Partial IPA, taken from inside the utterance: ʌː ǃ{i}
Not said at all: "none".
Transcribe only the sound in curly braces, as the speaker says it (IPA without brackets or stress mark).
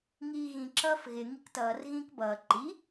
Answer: i